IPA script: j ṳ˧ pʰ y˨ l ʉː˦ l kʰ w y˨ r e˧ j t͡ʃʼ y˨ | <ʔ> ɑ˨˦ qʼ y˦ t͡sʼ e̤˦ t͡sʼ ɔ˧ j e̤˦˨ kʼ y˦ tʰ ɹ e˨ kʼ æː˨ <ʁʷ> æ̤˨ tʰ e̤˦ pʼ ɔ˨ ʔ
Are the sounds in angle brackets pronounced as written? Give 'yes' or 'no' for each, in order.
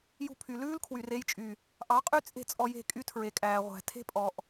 yes, yes

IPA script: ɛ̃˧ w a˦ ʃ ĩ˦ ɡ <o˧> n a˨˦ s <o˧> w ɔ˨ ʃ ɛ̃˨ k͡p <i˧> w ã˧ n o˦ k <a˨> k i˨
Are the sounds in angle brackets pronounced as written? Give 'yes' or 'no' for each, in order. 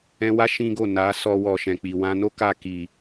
no, no, no, no

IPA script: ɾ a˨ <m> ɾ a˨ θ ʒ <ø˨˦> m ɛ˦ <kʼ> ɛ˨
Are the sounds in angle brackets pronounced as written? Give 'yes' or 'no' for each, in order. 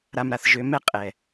yes, no, no

